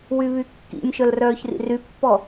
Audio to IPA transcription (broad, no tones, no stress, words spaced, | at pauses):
wyβykːḭnʲʃœl rœːçrḭrypːɔ